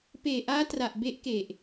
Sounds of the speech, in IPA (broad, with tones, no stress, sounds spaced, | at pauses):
p eː˨˩ ʔ aː˦˥ t r a˨˩ ʔ b e˦˥ ʔ k e˨˩ ʔ